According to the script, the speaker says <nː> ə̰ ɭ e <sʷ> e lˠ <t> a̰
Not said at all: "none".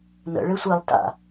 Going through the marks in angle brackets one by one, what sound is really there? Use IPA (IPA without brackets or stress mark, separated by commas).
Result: n, sʷ, t